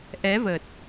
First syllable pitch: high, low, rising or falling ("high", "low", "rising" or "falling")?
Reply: rising